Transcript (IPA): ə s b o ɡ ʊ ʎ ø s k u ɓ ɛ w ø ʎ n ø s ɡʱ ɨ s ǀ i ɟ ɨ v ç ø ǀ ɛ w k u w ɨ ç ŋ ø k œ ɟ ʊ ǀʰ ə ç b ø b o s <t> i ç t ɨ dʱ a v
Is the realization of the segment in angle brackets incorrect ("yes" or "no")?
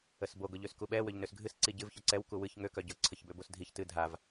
yes